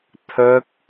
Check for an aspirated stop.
present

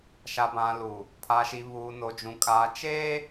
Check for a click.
absent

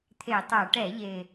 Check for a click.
absent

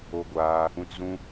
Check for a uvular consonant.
absent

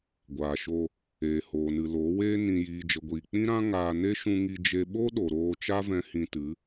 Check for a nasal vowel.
present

